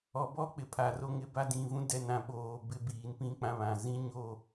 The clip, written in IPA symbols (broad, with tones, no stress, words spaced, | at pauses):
ɔ˨bɔ˦ k͡pɪ˨pʰa˨ ro˦˨ŋɪ˦ba˦ dĩ˨vũ˦ dɛ˦nã˦ ɓoː˨ bɪ˦biː˨npĩ˦ k͡pã˦βã˨ zĩ˦ɲo˦˨